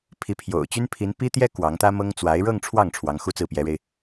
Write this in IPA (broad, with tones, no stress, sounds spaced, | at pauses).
pʰ i˧˥ pʰ j o̰˨˩ ʊ̯ t͡ɕ y˥ n pʰ i˧˥ n p i˥ t̪ j ɛ˥ k w ɑ˧˥ ŋ t̪ ä˥ m ɤ˥ ŋ t͡s w a˧˥ ɪ̯ ɻ ɤ˥˧ ŋ ʈ͡ʂʰ w ɑ˥˩ ŋ ʈ͡ʂʰ w ɑ˧˥ ŋ x u˥ t͡s ɹ̩˥˩ p j ɛ˧˥ ɻ e˧ ɪ̯